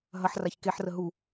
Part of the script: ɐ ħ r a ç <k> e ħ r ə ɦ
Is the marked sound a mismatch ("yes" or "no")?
no